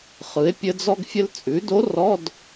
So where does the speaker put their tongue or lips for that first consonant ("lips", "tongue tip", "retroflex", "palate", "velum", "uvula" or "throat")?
uvula